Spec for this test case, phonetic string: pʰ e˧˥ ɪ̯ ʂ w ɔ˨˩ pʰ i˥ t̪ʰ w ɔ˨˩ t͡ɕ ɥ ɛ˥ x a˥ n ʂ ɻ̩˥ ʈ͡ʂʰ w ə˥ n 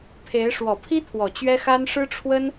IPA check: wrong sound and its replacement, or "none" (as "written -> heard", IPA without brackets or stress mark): none